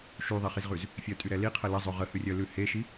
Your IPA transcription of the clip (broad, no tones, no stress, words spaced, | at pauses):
ʃyðˤiχizʁʉz | fʲœtʼyɾɛ liqʰə ləzˤø ʁəhʉrʲœlʉ heʃi